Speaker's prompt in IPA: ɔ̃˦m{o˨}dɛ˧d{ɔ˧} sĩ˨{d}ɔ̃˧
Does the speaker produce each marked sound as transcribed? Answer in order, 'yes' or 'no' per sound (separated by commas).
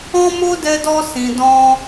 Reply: no, yes, yes